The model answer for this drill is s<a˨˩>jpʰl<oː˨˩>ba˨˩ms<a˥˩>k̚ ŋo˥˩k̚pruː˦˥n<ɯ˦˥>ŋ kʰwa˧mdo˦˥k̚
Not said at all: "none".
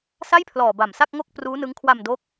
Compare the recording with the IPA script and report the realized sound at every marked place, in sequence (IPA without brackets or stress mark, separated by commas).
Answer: a˥˩, ɔː˨˩, a˥˩, ɯ˦˥